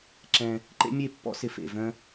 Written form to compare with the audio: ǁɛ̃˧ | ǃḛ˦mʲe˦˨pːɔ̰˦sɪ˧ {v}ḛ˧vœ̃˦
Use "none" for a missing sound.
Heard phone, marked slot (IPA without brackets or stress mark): f